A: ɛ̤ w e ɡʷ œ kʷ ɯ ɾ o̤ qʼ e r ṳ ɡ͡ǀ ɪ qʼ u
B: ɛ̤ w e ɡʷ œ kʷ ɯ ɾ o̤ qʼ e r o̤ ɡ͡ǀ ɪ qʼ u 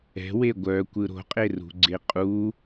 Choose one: A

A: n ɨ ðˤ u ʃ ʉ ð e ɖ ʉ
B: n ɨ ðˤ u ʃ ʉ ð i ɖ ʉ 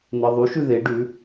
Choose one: A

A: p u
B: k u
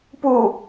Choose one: A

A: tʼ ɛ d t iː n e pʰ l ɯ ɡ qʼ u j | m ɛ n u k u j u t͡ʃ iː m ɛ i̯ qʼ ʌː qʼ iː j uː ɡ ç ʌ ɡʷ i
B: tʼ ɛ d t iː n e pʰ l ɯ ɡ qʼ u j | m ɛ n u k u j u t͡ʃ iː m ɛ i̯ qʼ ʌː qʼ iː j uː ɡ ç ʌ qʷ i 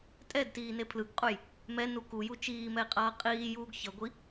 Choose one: A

